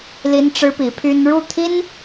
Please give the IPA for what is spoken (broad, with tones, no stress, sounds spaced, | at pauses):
l i˥ n ʈ͡ʂ ɻ̩˥ p i˧˥ pʰ y˥ n ɻ u˥˩ t̪ʰ i˥ n